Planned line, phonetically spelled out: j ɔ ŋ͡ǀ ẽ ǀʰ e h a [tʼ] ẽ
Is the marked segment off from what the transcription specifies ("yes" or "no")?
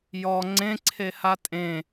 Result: no